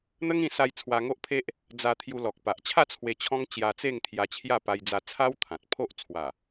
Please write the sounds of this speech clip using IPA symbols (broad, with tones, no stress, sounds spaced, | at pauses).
n̪ ə˦ ŋ ĩ˧ s a˧ j t͡sʰ w a˧ ŋ o˦ ʔ pʰ e˦ ʔ | d͡z a˧ t̪ʰ j u˧ l ɔ˨ k̚ p a˨ ʔ t͡ɕʰ a˥˧ t͡sʰ w e˧ t͡ɕʰ ɔ̃˦ ŋ t͡ɕ j a˧ t͡s e˥˧ ŋ t̪ʰ j a˧ t͡ɕʰ j a˥˧ p a˧ j d͡z a˧ t͡sʰ a˦ w t̪ʰ ã˨ t̚ pʰ o˦ ʔ t͡sʰ w a˨˩